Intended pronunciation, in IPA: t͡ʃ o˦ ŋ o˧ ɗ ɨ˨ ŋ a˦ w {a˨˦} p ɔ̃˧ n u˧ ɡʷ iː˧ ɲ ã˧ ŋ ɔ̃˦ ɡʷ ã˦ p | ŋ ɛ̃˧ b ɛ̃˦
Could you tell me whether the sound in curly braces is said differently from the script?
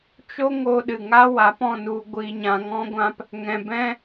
no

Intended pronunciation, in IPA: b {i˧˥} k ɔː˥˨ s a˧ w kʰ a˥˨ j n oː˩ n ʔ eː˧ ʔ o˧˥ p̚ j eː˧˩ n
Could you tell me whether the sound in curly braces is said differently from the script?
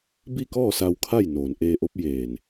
yes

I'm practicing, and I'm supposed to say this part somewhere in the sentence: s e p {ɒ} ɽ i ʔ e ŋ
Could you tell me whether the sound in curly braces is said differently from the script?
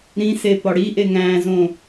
no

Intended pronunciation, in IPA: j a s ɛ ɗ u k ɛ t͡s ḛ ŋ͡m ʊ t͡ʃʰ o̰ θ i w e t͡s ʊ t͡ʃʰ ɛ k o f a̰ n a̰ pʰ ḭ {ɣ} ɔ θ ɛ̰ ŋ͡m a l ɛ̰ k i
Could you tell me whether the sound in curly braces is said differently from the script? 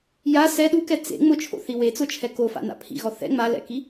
no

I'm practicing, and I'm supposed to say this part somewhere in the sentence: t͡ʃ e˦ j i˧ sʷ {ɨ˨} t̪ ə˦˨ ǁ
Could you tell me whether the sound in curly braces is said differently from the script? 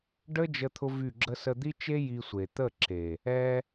yes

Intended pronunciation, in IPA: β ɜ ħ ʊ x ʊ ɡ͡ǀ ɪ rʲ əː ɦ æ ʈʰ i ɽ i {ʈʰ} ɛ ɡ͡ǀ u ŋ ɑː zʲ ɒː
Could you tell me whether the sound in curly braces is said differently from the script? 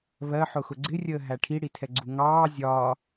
yes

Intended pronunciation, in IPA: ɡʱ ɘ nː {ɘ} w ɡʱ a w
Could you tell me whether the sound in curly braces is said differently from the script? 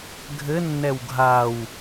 yes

